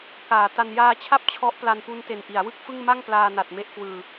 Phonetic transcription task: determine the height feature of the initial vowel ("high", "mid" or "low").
low